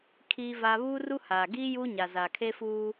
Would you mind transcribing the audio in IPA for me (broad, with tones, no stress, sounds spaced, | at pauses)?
kʰ iː˦ v a˦ β uː˦ r u˦ h aː˨ ɡ iː˦ j u˦ ɲ a˨ z aː˨ kʰ e˦ f uː˦